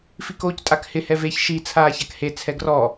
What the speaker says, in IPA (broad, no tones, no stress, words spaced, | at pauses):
fikoːctʼakhɪ hɛveç ʃi t͡sʰaːçakhe t͡sʰɛɡrɔ